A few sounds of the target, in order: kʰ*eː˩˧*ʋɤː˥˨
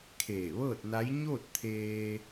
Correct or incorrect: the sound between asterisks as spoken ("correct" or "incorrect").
incorrect